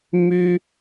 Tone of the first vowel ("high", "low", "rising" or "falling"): high